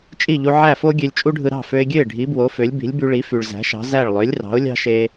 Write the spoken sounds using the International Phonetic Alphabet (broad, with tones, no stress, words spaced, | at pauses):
t͡ʃʼi˥˩ʎu˧ ʕæ˥˩fo˥ ɡʲø˧lʲt͡ʃʼu˥ɖʱɯ˧ ɾɑ̤˥˩fø˧ɪ̯ɡʲø˥˩ɪ̯ ɖʱi˩˥bwo˩˥ fø˩˥lʲbi̤˩˥lʲby˧ɭi˩˥ fy˩ɭzæ̤˩˥ʃɑ̤˩˥ zæ˥˩ɭ lˠø˩˥lʲrɑ̤˩˥ʊ̯ lʲɑ̤˥ʃe˧